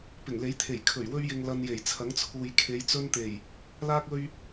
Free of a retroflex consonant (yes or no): yes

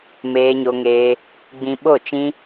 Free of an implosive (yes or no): no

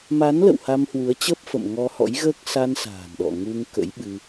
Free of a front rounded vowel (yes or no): yes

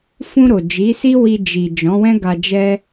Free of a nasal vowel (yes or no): no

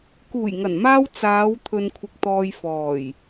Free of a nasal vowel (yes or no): yes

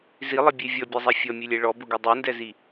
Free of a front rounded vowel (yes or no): yes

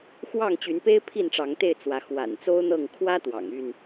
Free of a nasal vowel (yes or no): yes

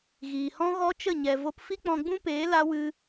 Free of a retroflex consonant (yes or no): yes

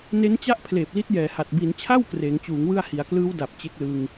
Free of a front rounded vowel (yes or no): yes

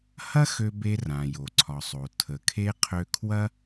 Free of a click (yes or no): no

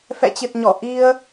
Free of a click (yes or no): yes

